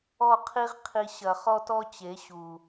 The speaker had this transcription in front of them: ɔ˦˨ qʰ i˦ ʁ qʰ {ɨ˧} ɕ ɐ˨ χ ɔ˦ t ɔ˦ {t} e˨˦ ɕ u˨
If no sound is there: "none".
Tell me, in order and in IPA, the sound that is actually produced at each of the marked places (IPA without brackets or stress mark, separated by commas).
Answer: i˧, t͡ɕ